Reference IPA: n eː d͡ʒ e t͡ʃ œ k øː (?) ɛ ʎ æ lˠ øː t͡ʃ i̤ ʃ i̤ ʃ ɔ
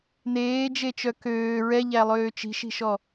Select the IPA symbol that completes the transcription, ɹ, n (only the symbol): ɹ